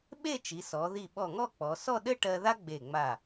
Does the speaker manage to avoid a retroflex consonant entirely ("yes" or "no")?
no